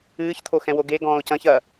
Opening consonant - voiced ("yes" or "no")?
no